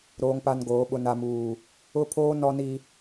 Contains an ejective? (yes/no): no